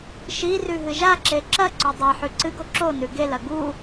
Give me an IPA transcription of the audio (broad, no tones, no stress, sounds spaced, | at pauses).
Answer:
ʃ i r ʉ ɦ ɨ ʒ a ǁ e ǁ ɐ ǀ ɵ dˤ ɐ ħ ʉ ǀ ɨ ɡ o ǁ o n ʉ ɡ e l ɐ ɡ u